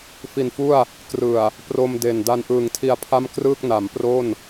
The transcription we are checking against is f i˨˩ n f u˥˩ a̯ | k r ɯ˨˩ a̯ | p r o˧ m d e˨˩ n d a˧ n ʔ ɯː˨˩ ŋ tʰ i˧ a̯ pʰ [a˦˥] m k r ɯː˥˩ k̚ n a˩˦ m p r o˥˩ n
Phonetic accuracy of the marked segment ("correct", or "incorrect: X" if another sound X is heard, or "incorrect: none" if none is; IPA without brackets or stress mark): incorrect: a˥˩